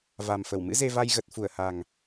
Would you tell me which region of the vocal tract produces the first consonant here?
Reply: lips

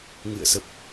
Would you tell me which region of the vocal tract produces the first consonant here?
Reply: velum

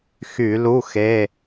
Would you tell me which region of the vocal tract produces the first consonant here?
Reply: velum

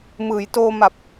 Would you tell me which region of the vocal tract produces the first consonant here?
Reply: lips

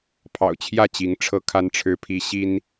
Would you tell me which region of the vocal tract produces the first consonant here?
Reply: lips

